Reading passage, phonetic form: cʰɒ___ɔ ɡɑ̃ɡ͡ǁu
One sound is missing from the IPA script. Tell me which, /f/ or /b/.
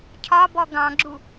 b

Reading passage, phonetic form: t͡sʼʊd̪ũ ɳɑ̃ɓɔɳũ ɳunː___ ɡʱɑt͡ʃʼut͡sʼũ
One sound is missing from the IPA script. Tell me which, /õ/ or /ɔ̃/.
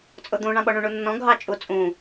ɔ̃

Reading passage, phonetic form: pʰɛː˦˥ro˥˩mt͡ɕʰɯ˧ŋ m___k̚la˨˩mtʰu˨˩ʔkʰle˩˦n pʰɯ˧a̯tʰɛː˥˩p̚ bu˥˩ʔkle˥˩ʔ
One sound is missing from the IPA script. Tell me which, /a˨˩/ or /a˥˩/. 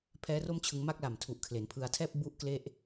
a˥˩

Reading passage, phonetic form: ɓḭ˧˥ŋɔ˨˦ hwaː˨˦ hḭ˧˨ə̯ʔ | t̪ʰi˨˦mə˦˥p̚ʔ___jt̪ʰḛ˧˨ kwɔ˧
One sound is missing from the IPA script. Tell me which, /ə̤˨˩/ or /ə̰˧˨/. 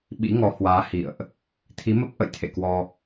ə̰˧˨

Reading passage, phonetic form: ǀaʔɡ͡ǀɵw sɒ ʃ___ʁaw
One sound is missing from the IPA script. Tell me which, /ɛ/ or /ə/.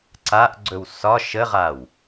ə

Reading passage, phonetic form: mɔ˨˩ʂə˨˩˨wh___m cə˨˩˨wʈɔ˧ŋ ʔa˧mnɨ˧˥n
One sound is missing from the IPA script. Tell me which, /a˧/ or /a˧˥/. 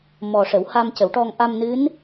a˧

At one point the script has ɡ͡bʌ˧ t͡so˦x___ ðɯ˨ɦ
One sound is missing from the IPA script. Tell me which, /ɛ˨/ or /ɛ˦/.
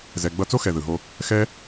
ɛ˨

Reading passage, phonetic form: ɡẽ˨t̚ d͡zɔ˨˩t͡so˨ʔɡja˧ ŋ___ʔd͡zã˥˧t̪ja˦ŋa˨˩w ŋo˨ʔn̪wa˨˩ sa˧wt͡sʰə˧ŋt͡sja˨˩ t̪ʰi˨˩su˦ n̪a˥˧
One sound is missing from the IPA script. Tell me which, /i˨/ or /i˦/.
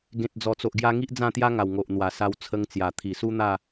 i˦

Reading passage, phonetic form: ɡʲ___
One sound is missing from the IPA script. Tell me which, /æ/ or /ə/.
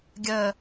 ə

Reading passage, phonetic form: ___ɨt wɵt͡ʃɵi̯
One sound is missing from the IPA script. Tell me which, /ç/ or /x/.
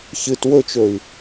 ç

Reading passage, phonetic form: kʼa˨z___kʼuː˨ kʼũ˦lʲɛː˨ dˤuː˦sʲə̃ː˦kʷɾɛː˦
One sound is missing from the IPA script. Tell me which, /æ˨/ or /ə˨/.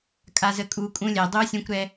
ə˨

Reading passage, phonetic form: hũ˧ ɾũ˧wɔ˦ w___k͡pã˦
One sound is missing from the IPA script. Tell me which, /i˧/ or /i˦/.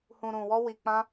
i˧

